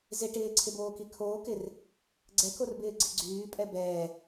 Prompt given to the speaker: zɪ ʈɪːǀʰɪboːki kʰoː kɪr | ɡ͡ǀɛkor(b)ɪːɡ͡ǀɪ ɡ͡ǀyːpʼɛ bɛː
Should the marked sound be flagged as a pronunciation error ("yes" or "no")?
no